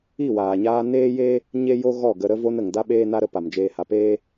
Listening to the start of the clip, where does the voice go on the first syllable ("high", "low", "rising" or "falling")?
falling